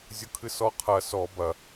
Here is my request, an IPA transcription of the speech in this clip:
zʲ ʊ kʰ ɨ s ɔ qʰ ɐ s ɔ b ɐ

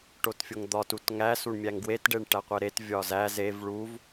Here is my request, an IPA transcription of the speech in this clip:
ʈ o t fʲ o ŋ d̪ ɒ t u t ŋ æ s u ɳ mʲ æ ŋ ɡ w e t ɖ e ɳ ʈ æ qʷ e ɾ e t vʲ ɒ z æ z e v ɭ u v

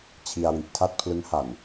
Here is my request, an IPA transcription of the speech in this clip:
t͡ɕʰ i˧ a̯ w i˨˩ ʔ tʰ a˥˩ t̚ pʰ l ɯ˦˥ ŋ h a˨˩ n

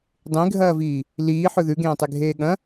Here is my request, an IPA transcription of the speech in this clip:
dˤ ẽ ɡʱ ɐː v iː | l iː ħ ɵ ð ʉ ɡ ẽː tˤ e ɡʱ eː ɠ ɐ̃

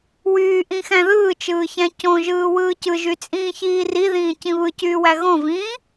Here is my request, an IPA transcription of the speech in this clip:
w yː ʔ ĩ x æ̃ ð ɯː t͡ʃ ɯː ç æ̃ c õ ʒ ɯː w ɯː c ɯ ʒ y t͡sʼ ĩː ç iː r i ð ĩː c ĩ β ɯ c yː w æ ɣ õ v ĩː

